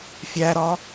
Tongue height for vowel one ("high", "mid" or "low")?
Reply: low